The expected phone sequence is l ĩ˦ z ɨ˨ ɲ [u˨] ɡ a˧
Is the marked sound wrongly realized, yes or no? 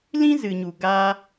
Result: no